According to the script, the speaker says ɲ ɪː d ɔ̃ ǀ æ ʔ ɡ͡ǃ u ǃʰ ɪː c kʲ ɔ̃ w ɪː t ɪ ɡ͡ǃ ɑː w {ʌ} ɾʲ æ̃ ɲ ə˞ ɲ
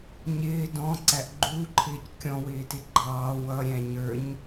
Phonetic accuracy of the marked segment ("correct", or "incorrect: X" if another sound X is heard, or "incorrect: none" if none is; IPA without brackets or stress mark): correct